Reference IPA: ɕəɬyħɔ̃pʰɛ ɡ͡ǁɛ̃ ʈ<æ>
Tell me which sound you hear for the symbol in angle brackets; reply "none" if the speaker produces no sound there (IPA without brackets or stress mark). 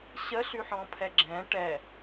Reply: ɛ